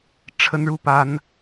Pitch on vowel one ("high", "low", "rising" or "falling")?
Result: high